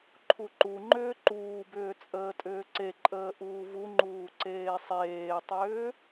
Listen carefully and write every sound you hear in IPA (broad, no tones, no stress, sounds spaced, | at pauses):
ǃʰ u ǃ u ŋ͡ǃ ʏː ǃ uː b ʏː t͡sʼ əː tʼ ʏː ǀ e ǃʼ əː ʔ uː v u ŋ͡ǃ uː ǀ eː sˤ eː tˤ ʏː